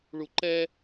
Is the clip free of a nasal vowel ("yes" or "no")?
yes